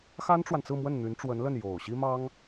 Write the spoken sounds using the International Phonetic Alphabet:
x a˥ n ʈ͡ʂ w a˨ n t͡s ɹ̩˥˧ m w ə˥˩ n n̪ y˧˥ n ʈ͡ʂ w ə˧˥ n l ə˥˩ n j o˨˩ ʊ̯ ɕ i˥ m ɑ˥ ŋ

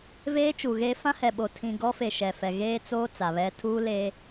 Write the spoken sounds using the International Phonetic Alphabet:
v eː˦ t͡ʃ u˨ ɣ eː˦ f ã˦ h ɛ˨ ɓ o˨ tʰ ĩ˨ ɡ ɔ˦ f e˨ ʃ ɛ˨ f ɛ˨ ɣ eː˦ t͡s oː˦ t͡s a˨ β ɛ˦ tʰ uː˦ l e˦

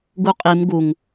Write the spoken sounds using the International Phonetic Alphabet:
ɡ u qʼ i m ɡ u ŋ

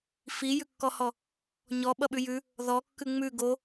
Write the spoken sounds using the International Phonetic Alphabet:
f i j ʉ kː ɔ h ɔ | ɲ ɔ ɓ ʌ ɓ ʉ j ʉ | ð ɔ kː ʉ ŋ͡m ʉ ɡ o

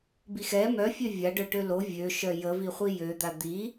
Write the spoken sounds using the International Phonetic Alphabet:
b i x ɛ m œ fʲ ø vʲ a ɖ œ ʈ ø l o vʲ ø ʃ œ j ə v i χʷ i j ø d̪ a d̪ i

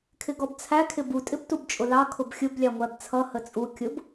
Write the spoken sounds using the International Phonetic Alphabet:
kʰ ɪ ɡ ɔ b t͡sʰ æ kʰ ɪ b u tʼ ɪ b t u b t͡ʃʼ ʊ l ɑ kʰ ʊ b xʲ ʊ b lʲ ɑ ŋʷ æ b t͡sʰ ʌ h ə t͡sʼ u kʲ ʊ b

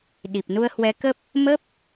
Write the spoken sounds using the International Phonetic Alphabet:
ɗ i˨˩ p̚ n u˧ ə̯ h w ɛ˨˦ k ə˦˥ p̚ | m ə˦˥ p̚

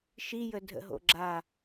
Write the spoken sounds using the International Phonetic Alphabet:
ʃ i j ə dʱ ə̰ ɦ o̰ ɡ͡ǁ a

